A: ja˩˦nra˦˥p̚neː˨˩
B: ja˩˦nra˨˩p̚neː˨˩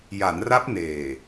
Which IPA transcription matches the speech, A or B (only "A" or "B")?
A